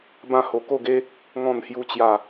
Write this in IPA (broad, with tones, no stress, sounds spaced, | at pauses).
b ã˥˧ h o˧ k o˥˧ ɡ e˦ | ŋ ɔ̃˥˧ n h j u˦ t͡ɕ j a˥˧